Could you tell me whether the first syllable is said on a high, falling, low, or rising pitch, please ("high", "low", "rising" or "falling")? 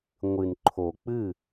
low